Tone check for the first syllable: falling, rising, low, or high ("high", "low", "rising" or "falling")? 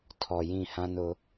low